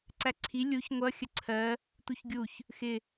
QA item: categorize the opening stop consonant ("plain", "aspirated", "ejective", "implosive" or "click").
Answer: click